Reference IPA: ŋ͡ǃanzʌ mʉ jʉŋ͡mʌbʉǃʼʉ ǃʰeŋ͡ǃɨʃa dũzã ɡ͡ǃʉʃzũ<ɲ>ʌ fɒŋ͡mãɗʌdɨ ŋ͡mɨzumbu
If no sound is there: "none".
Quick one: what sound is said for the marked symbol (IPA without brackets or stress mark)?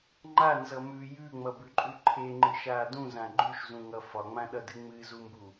ŋ